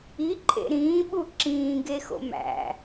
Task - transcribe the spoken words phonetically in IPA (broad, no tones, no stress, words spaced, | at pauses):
iǃʼḛ ɾĩːɓu ǁĩːɡexo̰ mæ̰